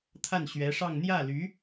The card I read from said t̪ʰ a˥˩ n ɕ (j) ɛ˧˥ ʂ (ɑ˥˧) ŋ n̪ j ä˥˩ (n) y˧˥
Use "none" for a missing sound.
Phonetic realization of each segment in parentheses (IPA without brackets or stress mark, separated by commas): ɥ, ɑ˥˧, l